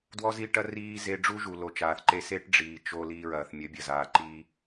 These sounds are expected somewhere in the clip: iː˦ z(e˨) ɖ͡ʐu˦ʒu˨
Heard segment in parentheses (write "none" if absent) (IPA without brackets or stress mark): e˧